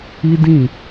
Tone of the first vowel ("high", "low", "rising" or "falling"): high